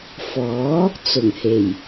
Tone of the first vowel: rising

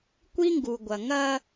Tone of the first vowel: high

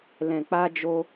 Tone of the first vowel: low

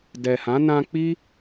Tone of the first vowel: low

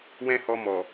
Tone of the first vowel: high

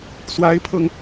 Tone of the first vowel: rising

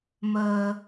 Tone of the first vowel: low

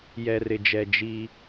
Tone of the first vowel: low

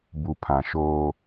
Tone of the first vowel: low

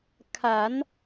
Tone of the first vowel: low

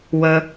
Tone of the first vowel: low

